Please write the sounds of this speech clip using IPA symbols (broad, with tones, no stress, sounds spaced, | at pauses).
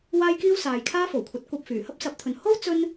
w aː˥ j k iː˥ w s aː˨ j kʰ aː˥ f o˨˩ w kʷʰ ɐ˨˥ t̚ kʷ ɐ˧ p̚ f yː˨˩ h ɐ˥ p̚ s ɐ˨˥ p̚ t̪ʰ ɵ˨ n h o˥ w t͡s ɵ˥ n